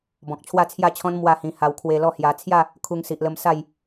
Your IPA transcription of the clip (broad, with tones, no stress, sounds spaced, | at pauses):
b ɔ̃˨ k̚ t͡ɕʰ w a˥˧ t͡sʰ j a˥˧ t͡ɕʰ ɔ̃˦ n m w a˥˧ h ĩ˧ h a˧ w kʰ w e˧ l ɔ˥˧ h j a˧ t͡sʰ j a˥˧ | kʰ u˧ ŋ s i˨ ʔ l ə˧ m s a˥˧ j